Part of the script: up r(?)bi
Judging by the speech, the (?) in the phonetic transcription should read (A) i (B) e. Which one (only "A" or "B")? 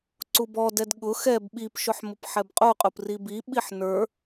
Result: A